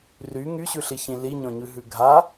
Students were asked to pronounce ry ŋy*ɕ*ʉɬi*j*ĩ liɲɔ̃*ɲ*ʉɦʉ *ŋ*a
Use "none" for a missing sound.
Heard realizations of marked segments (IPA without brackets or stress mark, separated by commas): ɕ, ç, ɲ, ɡʱ